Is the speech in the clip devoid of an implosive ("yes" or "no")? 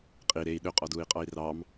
no